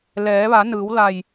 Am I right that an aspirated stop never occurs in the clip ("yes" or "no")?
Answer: yes